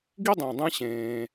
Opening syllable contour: high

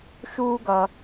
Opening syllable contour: high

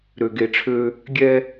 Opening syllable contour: low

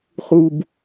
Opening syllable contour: low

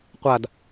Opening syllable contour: falling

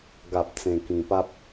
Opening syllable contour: low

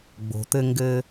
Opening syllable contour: low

